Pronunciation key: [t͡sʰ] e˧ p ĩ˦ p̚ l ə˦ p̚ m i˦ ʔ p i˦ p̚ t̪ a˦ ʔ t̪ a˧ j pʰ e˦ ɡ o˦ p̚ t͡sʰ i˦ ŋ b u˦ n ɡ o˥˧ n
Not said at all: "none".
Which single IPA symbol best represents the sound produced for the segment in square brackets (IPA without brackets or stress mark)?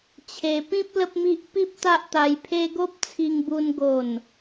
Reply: t͡ɕʰ